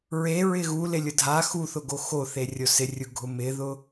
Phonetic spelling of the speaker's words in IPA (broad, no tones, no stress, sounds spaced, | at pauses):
ɹ e ɹ ɪ ɣ u l ɪ lʲ ʊ dʱ a x u θ ʊ ɡ o x o θ e rʲ o s ɪ rʲ u ɡʱ ʊ m ɪ ð ʊ